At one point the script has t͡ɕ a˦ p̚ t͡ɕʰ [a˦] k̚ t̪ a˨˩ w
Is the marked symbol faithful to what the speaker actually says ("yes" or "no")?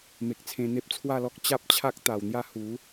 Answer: yes